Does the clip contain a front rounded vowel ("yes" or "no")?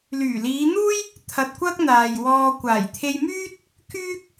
yes